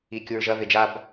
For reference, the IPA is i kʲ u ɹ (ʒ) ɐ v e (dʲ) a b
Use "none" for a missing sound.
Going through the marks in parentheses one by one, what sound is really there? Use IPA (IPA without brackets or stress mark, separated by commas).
ʒ, d͡ʒ